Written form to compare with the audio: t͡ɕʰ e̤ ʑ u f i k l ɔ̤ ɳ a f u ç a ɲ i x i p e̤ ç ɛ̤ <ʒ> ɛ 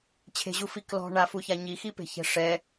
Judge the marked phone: incorrect: ʂ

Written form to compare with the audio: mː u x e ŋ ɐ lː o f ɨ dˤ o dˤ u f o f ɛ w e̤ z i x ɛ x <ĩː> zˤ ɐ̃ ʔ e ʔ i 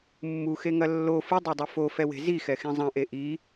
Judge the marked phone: incorrect: ĩ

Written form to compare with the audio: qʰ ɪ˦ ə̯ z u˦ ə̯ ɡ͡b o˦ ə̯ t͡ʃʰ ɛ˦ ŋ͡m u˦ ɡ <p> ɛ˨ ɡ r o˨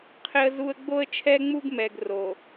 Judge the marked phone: incorrect: m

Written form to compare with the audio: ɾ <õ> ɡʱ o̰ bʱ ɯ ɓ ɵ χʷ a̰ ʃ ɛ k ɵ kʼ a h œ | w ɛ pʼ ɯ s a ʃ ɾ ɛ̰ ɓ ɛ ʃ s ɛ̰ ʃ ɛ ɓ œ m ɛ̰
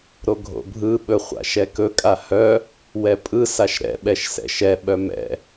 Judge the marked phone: incorrect: o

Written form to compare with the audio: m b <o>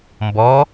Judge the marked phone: incorrect: ɔ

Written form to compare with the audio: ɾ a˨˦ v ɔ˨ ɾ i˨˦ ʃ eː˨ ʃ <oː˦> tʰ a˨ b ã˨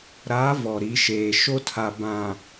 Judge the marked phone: incorrect: o˦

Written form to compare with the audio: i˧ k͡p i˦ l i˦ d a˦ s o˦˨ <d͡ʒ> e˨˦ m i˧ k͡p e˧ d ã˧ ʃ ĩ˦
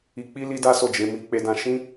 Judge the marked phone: correct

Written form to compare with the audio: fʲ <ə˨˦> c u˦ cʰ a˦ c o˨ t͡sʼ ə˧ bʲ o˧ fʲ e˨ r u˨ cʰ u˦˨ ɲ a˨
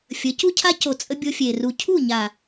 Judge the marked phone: correct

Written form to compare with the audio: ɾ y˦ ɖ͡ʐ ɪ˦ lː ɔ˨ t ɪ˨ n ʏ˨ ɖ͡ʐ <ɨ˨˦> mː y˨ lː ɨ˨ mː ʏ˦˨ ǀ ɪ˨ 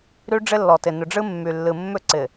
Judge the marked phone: incorrect: ɨ˦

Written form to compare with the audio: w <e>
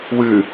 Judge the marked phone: incorrect: ɨ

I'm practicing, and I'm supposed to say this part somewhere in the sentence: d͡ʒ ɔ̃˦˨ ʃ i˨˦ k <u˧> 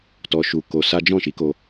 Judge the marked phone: incorrect: o˧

